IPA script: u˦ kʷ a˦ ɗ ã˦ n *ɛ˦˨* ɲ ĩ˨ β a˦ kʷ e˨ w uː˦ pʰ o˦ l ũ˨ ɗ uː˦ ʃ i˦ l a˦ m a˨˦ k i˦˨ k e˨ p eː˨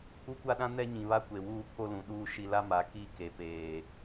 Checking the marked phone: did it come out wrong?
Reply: yes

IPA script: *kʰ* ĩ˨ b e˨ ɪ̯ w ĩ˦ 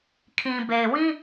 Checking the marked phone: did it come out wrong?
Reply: no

